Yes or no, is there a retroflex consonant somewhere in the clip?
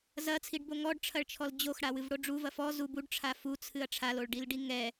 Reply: yes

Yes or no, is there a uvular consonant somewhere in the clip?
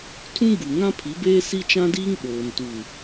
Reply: no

